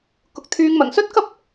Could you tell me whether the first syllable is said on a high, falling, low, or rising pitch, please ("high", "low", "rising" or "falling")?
low